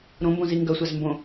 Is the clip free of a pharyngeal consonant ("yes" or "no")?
yes